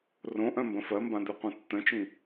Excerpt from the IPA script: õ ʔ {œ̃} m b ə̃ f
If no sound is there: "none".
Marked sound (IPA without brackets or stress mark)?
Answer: œ̃